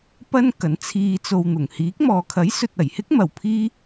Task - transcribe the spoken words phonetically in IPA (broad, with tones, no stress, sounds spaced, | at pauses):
p ɐ˥ n k ɐ˨˥ n t͡sʰ iː˧ t͡s o˧ w n̪ ʊ˨˩ ŋ h iː˨˥ k̚ m ɔː˨ kʰ ɐ˨˥ j s ɵ˨ t̚ ɐ˨˩ j h ɪ˥ k̚ m ɐ˨ w pʰ iː˥